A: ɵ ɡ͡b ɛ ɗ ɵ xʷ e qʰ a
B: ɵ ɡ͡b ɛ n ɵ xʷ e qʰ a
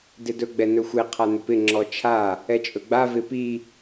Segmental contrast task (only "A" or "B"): B